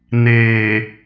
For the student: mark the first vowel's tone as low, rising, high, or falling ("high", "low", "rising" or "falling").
low